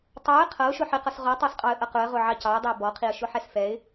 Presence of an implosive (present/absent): absent